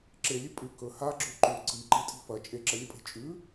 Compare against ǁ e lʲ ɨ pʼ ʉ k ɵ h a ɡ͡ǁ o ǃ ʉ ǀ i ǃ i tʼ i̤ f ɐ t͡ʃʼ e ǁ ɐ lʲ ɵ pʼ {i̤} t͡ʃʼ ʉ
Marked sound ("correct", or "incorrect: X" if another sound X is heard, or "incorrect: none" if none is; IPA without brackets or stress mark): incorrect: e̤